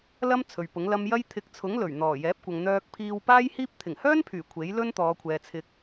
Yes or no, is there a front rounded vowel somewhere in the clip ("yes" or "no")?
yes